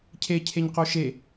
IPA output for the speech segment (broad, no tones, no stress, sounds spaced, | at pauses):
cʰ e cʰ e ɲ q o ʃ e